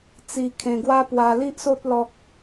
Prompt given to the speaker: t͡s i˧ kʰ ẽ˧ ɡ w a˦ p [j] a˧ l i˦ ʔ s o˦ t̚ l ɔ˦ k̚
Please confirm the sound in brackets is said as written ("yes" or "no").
no